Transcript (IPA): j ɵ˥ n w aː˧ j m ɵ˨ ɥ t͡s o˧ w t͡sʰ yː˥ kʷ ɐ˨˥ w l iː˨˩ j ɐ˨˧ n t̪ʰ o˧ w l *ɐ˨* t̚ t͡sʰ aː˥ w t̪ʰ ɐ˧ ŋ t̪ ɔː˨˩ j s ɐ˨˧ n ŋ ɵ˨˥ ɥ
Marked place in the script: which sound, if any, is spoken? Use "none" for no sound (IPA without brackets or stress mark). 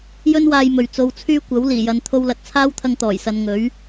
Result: ɐ˨